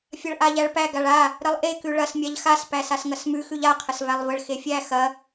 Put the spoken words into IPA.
fʲɐɭʔaʎæɭpæ ɡaɭa | ɾəlˠʔe kʉɭɐs mʲaʎxas pæsasŋɐsmʉ xʉʎa qʰəsvælˠvəɭ xefʲæ xɐ

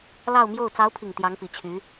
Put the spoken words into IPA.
lɑ˥˧ʊ̯mjo˥˩ʊ̯ t͡sɑ˧˥ʊ̯pʰi˨˩ŋ t̪jɑ˧˥ŋpi˨˩t͡ɕʰy˧˥

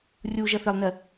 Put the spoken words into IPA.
rʲu ʒʌθɪlˠnɜ

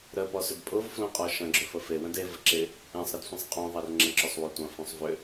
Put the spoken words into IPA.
ɾəpɔsʏd pʼʊvflõqʼɔ ʃɐ̃ɡ͡ǁʏ fəfewə̃d e vəǁɪ | ẽsˤɾədsʷĩsˤ qʼõðˤɛr ŋ͡ǁə̃ǁʏsˤwotʷɐ̃ fõsˤvʏ

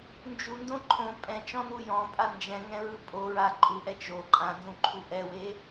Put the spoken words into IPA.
nd͡ʒundõ ǃʰõ pʼɛ̃t͡ʃɔ̃nu jɔ̃pʼa nd͡ʒɛ̃ŋɛ̃ɹɯ pʼoɹa ǃʼuʔɛ t͡ʃo ǃʼãnzũǃʰu ʔɛwe

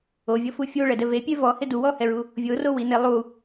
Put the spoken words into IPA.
ovʲɔfu fʲoɭɛdɛ vepʲe vɔhɪ duwɔhɛɹu | vʲorowine lˠu

